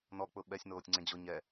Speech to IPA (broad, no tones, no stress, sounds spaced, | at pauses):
n ɔ k͡p ʊ ɓ ɛ sʲ n oː tʲ ŋ͡ǀ ẽ d͡ʑ ʊ ɲ ɛ